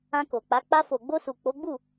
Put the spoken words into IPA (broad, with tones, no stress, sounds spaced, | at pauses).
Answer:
ã˧ k o˨ k͡p a˨˦ k͡p a˧ f o˨ ɡ͡b o˧ s u˨ k͡p o˨˦ ɡ͡b u˦˨